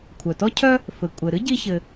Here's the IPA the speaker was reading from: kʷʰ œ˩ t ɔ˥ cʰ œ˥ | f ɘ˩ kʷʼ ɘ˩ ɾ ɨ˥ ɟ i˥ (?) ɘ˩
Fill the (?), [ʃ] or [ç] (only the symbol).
ç